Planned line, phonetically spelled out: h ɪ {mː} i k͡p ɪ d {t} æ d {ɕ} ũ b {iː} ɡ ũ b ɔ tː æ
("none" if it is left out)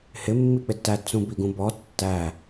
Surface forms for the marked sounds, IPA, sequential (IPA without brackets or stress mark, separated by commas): mː, t, t͡s, i